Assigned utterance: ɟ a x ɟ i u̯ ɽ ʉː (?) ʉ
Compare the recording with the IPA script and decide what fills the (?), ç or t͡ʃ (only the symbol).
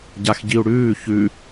ç